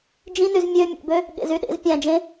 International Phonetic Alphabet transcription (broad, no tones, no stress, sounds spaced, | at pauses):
d͡ʒ ĩ n y z mʲ ø mʲ ḛ b ø | ɠ ḛ z y ɗ ḛ z pʲ æ̃ d͡ʒ ẽ